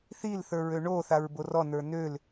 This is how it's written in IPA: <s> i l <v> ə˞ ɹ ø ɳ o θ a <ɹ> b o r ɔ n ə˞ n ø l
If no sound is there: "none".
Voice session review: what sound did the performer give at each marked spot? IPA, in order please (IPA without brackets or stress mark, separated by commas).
θ, θ, ɹ